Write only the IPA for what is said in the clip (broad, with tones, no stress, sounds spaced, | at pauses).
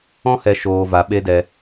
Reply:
ɔ̃˦ h ɛ˨ ʃ oː˨ v a˨˦ ɓ e˦ d ɛ˧